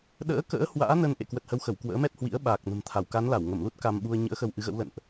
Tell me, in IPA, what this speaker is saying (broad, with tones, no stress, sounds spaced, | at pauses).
ɗ ə̰ː˧˥ k ə̰ː˧˥ h w a̰ː˧˥ n ə˧ n ʔ ḛ˧˨ k w ə˨˩ t̚ h ə˨˦ w x ə˧˩ w k w ə̰ː˧˥ m ɛ˦˥ t̚ h w ḭ˧˥ ə̯ ɓ aː˨˩ k̚ n ə̤˨˩ m t̪ʰ a˧˩ w k a˨˦ n l a˧˩ w ŋ ə˧˩ m l u˦˥ t̚ k a˧ m ɓ u˧ ə̯ ɲ ɨ̰˧˥ ə̯ x ə˧ w ʔ ɨ˨˦ ɣ ə̰˧˥ w l ə̰˧˨ n ʔ